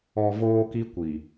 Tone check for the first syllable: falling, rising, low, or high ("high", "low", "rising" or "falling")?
low